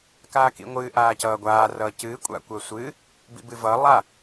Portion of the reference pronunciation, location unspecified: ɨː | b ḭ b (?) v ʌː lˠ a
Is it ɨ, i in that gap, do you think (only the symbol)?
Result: ɨ